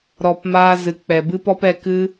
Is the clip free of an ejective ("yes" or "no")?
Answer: yes